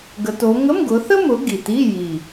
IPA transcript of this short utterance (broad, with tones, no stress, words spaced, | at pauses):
ɡə˨˦to˨˦ ŋə˧˥˧mɡʊ˨˦θə˥mʊ˨˦ ɡi˨˩ti˧˥˧ji˨˩